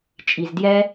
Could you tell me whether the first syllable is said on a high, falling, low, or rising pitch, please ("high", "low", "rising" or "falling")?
low